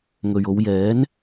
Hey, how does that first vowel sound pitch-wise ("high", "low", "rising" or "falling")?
low